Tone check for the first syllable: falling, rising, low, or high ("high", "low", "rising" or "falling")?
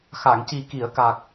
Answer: low